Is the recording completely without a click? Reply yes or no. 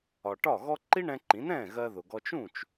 no